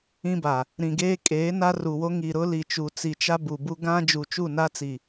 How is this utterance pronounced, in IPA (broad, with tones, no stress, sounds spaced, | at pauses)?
ĩ˦ b a˨ | ɾ ĩ˨ ɡ eː˦ kʼ eː˨˦ n a˦ r u˨ w o˦ ŋ i˨ ɾ ʊ˦ l i˨ t͡ʃ u˨ t͡s i˨ t͡ʃ a˦ b u˨ b u˦ ɡ ã˦ d͡ʒ u˨ t͡ʃ u˦˨ n a˦ t͡s i˨